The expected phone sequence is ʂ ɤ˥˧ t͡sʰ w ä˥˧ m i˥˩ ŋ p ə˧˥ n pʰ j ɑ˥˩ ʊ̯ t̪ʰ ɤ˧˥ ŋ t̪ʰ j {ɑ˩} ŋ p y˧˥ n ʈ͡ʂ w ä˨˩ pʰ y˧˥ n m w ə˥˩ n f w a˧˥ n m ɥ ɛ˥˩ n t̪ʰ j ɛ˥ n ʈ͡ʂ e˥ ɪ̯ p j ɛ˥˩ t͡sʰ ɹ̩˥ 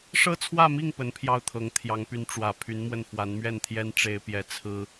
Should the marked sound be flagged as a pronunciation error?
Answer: yes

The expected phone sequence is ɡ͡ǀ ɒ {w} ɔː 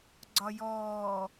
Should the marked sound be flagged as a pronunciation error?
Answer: yes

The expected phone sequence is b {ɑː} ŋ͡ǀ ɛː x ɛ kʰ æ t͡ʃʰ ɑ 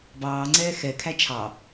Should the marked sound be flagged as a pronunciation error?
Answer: no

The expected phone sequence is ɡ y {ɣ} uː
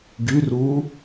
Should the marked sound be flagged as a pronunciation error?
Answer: yes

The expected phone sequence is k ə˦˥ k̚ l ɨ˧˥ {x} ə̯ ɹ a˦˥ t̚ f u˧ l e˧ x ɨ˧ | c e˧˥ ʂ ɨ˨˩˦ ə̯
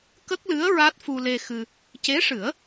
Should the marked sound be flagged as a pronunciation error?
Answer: yes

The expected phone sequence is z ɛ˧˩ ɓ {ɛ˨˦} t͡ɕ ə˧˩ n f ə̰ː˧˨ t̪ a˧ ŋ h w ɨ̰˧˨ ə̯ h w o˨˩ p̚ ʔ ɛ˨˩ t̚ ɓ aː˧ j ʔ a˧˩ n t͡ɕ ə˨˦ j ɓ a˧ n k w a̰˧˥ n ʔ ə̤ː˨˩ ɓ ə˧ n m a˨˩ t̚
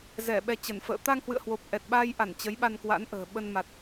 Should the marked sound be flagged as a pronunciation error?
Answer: yes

